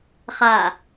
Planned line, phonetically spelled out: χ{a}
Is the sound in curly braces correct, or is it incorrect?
correct